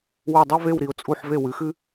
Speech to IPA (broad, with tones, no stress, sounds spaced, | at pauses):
w ʉ˧˩ dˤ ɐ˥˧ v e˧˩ w ɾ i˩˧ ʊ̯ t͡sʼ u˧˩ ħ v e˧˩ w ɨ˩˧ x ɨ˧